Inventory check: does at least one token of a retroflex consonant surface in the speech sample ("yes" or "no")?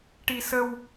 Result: yes